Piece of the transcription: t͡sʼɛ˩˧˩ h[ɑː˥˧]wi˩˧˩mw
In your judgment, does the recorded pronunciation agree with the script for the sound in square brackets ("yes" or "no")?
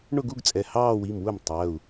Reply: yes